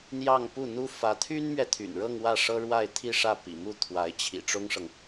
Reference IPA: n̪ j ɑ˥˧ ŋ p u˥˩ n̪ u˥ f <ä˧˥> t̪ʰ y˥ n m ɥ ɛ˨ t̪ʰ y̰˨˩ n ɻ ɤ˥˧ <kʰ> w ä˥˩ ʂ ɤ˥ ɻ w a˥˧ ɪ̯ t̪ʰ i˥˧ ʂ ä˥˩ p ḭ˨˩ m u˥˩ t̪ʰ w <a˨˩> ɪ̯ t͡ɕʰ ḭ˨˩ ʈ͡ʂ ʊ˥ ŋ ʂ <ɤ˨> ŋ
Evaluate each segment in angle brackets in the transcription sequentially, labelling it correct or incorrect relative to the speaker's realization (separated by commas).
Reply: correct, incorrect, incorrect, correct